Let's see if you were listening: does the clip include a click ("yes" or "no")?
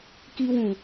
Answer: no